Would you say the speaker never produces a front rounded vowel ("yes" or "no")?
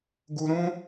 yes